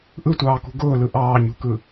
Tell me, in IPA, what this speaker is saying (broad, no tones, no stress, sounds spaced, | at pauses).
ʔ ɯ tʷ ɑː k ṳ ɡ ʊː l ɯ ʔ ɑː ɲ ṳ k ɯ